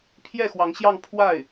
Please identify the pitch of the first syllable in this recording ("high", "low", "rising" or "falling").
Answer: falling